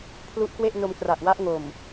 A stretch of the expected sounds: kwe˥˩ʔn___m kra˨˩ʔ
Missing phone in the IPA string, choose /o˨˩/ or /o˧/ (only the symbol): o˧